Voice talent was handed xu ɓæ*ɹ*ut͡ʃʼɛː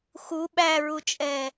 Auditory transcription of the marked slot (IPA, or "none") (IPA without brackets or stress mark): ɹ